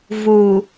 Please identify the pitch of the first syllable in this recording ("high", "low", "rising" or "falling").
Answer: low